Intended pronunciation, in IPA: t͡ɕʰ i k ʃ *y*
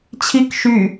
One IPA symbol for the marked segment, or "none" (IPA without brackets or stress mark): y